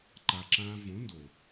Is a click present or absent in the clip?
present